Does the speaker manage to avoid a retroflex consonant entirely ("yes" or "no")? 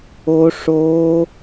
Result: no